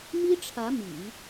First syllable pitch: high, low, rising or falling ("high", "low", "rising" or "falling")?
high